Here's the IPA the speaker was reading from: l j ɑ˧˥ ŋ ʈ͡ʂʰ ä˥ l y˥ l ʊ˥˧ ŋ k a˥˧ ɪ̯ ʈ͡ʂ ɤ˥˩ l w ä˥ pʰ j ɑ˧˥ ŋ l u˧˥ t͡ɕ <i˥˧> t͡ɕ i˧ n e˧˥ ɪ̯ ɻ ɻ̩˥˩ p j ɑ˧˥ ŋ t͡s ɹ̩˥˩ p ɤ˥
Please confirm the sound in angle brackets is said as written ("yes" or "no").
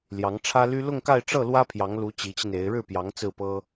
no